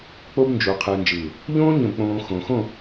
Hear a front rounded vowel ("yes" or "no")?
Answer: no